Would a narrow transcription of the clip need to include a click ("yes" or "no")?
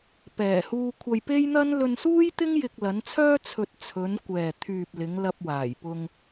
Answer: no